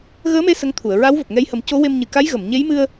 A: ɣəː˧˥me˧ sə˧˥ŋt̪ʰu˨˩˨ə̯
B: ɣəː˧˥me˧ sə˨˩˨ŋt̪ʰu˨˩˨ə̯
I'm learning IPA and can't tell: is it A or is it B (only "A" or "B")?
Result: A